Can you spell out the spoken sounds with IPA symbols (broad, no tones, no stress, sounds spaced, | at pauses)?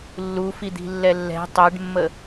lː u f i d̪ i̤ lː ɛ lː ɛ̤ tˤ e ɖ mː ə